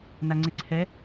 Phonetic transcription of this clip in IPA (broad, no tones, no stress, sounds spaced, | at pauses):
n a ŋ͡ǀ ɪ ǀʰ ɛ